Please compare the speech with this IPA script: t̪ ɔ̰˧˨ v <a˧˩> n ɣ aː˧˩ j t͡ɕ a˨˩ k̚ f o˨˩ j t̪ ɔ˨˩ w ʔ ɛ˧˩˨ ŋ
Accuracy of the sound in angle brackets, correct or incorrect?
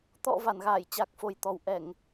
correct